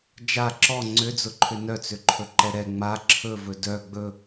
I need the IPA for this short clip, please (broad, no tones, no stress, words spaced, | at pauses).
d͡ʒa ǁɔ ŋ͡ǀʏd͡zʊǃʰʏ nœt͡sʏǃʰɵ ǃɛɾɛ ŋ͡ma ǁʰɵvɵ dœ ɡ͡bɵ